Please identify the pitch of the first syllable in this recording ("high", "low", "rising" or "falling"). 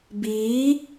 rising